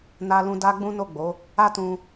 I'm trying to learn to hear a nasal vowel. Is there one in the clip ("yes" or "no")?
yes